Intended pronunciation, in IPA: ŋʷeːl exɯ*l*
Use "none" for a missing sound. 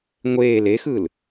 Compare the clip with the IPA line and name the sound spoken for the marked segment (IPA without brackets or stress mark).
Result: l